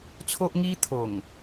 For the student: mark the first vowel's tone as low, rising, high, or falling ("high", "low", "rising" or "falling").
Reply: high